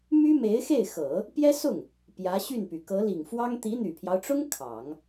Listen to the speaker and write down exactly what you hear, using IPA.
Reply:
my˥me˧˥ɪ̯xe˥˩ɪ̯ xɤ˨˩˦ | pjɛ˥sʊ˥˩ŋ | pjä˧˥ɕy˥˩npy˩ kɤ˧˥li˨˩ŋfwɑ˥ŋ t̪i˧˥n̪y˨˩pʰjɑ˦ʊ̯ʈ͡ʂʊ˥ŋ kʰɑ˨˩˦ŋ

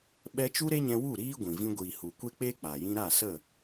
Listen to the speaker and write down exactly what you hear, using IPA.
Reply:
ɓɛ˦ t͡ʃu˦ɾe˦ɲɛ̃˧wu˦˨ ɾiː˦ ɡʷĩ˨vĩ˧ ɡʷiː˨hu˨ kʷe˦k͡peː˦ k͡pa˨jĩ˦ ɾa˦˨sə˦˨

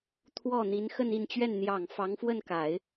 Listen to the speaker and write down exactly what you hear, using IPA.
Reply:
t̪ʰwɔ˥˩ n̪i˧˥nxə˥˧ni˥˧nt͡ɕɥɛ˥˩n n̪jɑ˨˩ŋ fɑ˧˥ŋfwə˥˩nka˨˩˦ɪ̯

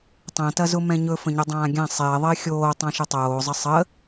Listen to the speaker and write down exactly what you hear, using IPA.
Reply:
tˤɛ̃tɐzʊ mɛ̃ɲɵ fə̃ɲɵdˤãːɡʲã sˤɪːðˤɪː xʲoː tˤãʃətˤoːzˤə sˤə

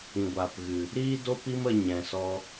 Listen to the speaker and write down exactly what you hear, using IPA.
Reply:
ĩ˧ɡʷaː˧pɣɨ˧ | ɾiː˦do˦pi˦m ə˦ ɲɛ̃˧sɔ˦

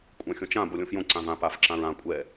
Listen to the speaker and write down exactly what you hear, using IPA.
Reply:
kʷʼãxʲõt͡ʃã bolʲõfjõ ǀãvã paf ǁãɹã kʷʼɛ

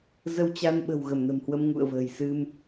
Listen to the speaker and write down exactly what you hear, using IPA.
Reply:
zə˧wt͡ɕa˧nɓə̤˨˩w ɣə˧˩mnə̤˨˩mhwə˧m ŋṵ˧˨ə̯və̤ː˨˩j sɨ˧m

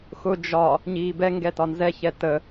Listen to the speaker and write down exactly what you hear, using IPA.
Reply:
xʊ d͡ʒɒ | ɲiːbɛŋɡɛ tɒnzɛçɛ tə

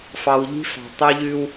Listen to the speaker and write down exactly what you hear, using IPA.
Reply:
fɑ˨wʎi̤˦fɑ̤˨ tˤu˦ʎʉ˦w

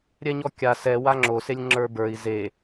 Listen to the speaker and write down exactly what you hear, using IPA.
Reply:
ɾʲɛɲɔkʲa sɛwa ŋ͡ǁoselʲ ŋ͡ǁə˞bə˞i̯ ze

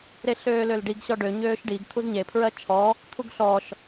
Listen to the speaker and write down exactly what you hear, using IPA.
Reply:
ɾeɬøːlølɖiɡ ɕɔɖø ɲøːʃɖiɡ t̪ʰuzɲe pʰɹɜt͡ʃʰɔ | t̪ʰuɡɬɔʃ

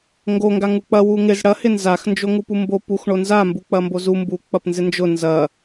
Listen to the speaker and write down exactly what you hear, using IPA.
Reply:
ŋɡo ŋɡaŋuk͡pɐ wuŋɪz ɽɐ hɪnzax nd͡ʒoŋupumbo pux ɳonza mbuk͡pɐmbozu mbu k͡pɐpnzɪnd͡ʒʊ nzɐ

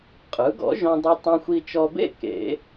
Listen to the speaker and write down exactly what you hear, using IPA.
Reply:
qʼɯ˩˥ɡɔ̰˩˥ʒõ˧dˤɯ˧ tˤõ˧xʷi˧t͡ʃɔ˧bḛ˥˨ kḛ˨˩˦

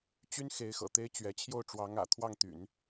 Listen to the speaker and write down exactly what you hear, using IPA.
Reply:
t͡ɕy˥nxe˧˥ɪ̯ xɤ̰˨˩t̪e˥ɪ̯t͡ɕɥɛ˧˥ t͡ɕʰjo˥˩ʊ̯ʈ͡ʂwɑ˧˥ŋä̰˨˩ t̪ʰwɑ˥˩ŋt̪y̰˨˩˦n

